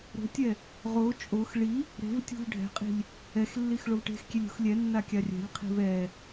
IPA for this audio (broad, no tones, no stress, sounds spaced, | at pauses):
ɾ o̤ tʲ ɛ | ʁ o t͡ʃʼ o x ɭ i | ɾ e̤ v tʲ ṳ v ɖʱ ɛ̤ qʼ i̤ lʲ | ɛ x lː i x ɭ o v ʈ e̤ x kʲ e lʲ ṳ x lʲ ɛ nː a kʲ a rʲ ɛ̤ lʲ qʰ i̤ v ɛ